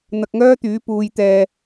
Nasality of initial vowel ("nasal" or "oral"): oral